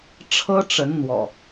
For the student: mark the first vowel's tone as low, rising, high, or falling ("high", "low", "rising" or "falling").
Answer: high